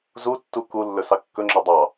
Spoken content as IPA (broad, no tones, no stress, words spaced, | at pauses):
zutːu kulːɵ sɑkːɵŋ͡ǁɔ dˤɑ